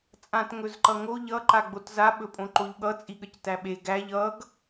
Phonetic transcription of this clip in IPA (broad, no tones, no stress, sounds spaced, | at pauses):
t͡sʼ ã t ŋ ɵ z ǃ ʌ ŋ o ʎ ʌ ǃ a ɡ͡b o t z a ɓ ɵ pʼ õ ǃ o ʎ ɠ ʌ t͡sʼ i ɠ ə c t æ ɓ e ɡ æ ʎ ʌ ɡ